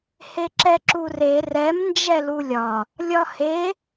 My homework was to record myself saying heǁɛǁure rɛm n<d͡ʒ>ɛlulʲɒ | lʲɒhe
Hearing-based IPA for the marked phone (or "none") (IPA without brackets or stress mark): d͡ʒ